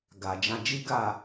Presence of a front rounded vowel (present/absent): absent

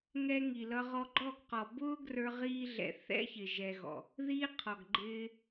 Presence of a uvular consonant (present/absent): present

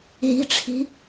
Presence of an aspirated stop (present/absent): present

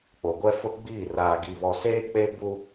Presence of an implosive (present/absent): absent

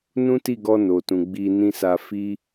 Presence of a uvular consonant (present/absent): absent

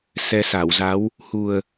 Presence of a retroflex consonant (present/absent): absent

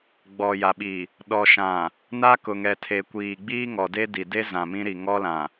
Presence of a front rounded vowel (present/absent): absent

